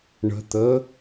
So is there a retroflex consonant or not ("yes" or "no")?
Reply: yes